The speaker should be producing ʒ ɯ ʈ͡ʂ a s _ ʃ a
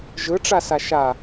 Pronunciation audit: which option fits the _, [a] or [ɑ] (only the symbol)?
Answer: a